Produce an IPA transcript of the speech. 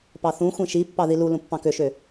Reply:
p ɑ θ ũ xʷ ĩ ʃ i pː ɑ ð i l u l ũ pː ɑ̃ k ø ʃ ø

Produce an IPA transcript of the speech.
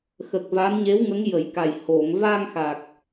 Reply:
x ə˨˩ k̚ v a˧˥ n ɲ e˧˥ w ŋ ə˧˥ ŋ j ə˨˩˦ j k a˨˩ j h o˨˩˨ ŋ v a˧ ŋ x a˨˩ k̚

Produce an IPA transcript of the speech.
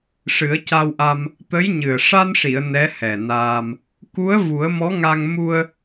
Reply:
ʂ ɨ˨˩˦ ə̯ c a˧ w ʔ a˧ m | t̪ ə˧˥ j ɲ ɨ˨˩ ə̯ ʂ a˧ n ʂ i˨˩˨ ə̯ n ɛ˧˥ h ɛ˨˩ n aː˧ m | k u˧˥ ə̯ v u˨˩˦ ə̯ m ɔ˧˥ ŋ a˧ ŋ m u˧ ə̯

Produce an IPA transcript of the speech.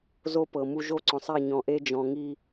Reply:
z o˦ p ɤ˨ m u˦ ʒ o˦ ǀ ɔ̃˨ sˤ e˦˨ ɲ ɔ̃˨ ʔ e˦ d͡ʒ ɔ̃˨ ŋ i˦

